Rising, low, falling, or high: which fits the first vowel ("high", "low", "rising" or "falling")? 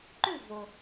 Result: falling